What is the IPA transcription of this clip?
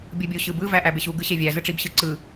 bʲ ɯ bʲ u ɕ ɯ b ɯ v æ ʔ æ b e ɕ u ɡ ɯ ɕ e vʲ æ z ɯ ʈ͡ʂ i b ɕ ɯ ǀ ɯ

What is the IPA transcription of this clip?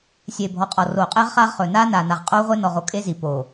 sʲ eː˨ bʱ ɔ˨ qʼ ɔ˨ r oː˨ qʼ eː˦ ʁ χ aː˦ ʁ χ ɵː˨ n aː˦ n aː˨ n a˨ ʁ qʼ oː˦ ʁʷ e˦ n ɔ˨ ʁ o˦ kʼ e˦ z i˨ p o˨

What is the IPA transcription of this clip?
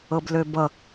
ɤ b l ø b ʌ

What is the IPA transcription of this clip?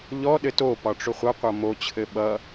ʎ ɔ ɗ ɘ t o p ɒ ʈ͡ʂ o χʷ ʌ qʷ ʌ m o t͡ɕʰ ɘ ɓ ʌ

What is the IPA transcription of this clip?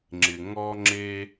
ŋ͡ǁ ɪ˧ ŋ ɔ˥ ŋ͡ǁ e˥

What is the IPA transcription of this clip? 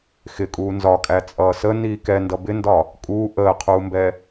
x ɪ kʼ uː n z ɒ kʼ æ t͡sʼ ʌː s ə n iː k ɛ n d ʌ b ɪ n d ɒ | kʼ uː ʔ əː qʰ uː m b ɛ

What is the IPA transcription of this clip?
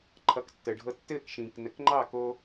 ǃʰ ʌ˩˥ k tː ə˩ ɖʱ ɤ˥˩ tː ɘː˥˩ k ʃ ĩː˩ k n ə˩˥ k ŋ͡ǃ ɑ˥˩ k o˧

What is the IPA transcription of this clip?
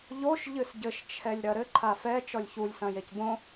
ʎ o ʃ ʎ ɨ s ɟ ɘ ʃ t͡ʃʰ ɛ lʲ ɾ ɐ ɾ ɘ ǃʰ a f ɛ t͡ʃ ɔ lʲ ç u lʲ s ɐ̃ j e c b õ

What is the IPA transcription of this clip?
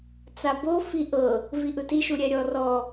t͡s a b o f i ʔ ɤ | v i ʔ ɯ t i ʃ u ɾʲ ɛ ɾʲ ɔ r ɔ

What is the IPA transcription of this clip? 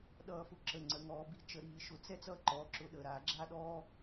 ɗ ʌː˧˩˧ f ʊ˨˥ ǁ ə˩˧˩ ŋ͡ǀ ə˩˧˩ ŋ ɔː˧˩˧ b i˨˥ t͡ʃ ə˧˩˧ ɾ iː˧˩˧ ʃ ʊ˧˩˧ t͡s ɛ˥ t͡s ʌː˥ ǃ ɔː˩˧˩ ǁ ʊ˨˥ ɗ ə˩˧˩ ɾ aː˧˩˧ ɡ͡ǁ a˥ ɗ ɔː˥

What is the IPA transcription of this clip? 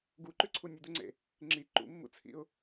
ɡ u ǃ ʉ ǀʰ u nʲ ʉ d̪ u ŋ͡ǀ ḛ | ŋ͡ǁ i ǃ ṵ mː ṵ t͡sʰ ḭ ʊ̯

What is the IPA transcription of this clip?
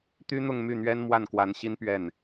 t̪ y˥ n̪ ʊ˥˧ ŋ m y˥˩ n̪ ɥ ɛ˥ n m w a˥˩ n k w a˧˥ n ɕ i˥ n p ɥ ɛ˥˩ n

